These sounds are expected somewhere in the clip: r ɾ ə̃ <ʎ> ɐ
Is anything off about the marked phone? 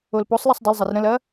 yes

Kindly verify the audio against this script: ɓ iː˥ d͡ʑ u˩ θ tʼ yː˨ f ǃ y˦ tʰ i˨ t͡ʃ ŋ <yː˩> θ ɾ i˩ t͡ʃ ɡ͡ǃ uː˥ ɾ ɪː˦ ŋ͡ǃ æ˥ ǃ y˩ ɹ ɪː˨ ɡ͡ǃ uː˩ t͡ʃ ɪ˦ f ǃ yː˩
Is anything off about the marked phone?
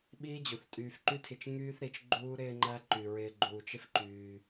yes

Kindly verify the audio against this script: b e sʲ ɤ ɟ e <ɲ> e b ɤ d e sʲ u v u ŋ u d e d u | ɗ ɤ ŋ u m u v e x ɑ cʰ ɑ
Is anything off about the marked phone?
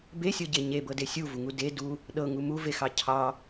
no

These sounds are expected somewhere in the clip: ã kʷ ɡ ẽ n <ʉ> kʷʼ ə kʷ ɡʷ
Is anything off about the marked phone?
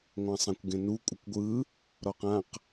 yes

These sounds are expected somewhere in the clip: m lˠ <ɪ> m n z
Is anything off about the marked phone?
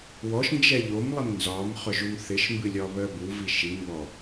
no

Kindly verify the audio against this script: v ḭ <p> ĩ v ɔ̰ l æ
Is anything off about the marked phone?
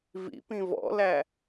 no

